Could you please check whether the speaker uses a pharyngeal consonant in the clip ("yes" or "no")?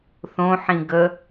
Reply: yes